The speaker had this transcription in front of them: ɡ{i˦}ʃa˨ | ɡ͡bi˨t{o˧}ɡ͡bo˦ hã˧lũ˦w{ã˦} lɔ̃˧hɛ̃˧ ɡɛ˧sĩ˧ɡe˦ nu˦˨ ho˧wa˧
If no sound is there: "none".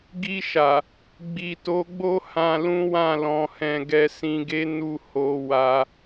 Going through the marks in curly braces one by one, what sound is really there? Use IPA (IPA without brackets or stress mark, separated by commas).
i˧, o˨˦, ã˦˨